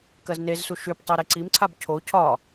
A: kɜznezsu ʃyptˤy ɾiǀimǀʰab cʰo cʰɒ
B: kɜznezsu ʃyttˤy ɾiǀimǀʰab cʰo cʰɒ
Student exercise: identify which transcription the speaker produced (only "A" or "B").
A